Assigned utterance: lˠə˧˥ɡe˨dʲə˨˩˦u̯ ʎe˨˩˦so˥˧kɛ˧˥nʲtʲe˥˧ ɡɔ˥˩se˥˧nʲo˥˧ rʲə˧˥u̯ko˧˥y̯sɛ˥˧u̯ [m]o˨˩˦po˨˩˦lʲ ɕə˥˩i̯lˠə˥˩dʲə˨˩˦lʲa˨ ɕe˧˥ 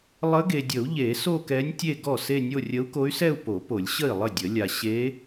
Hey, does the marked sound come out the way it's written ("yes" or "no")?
no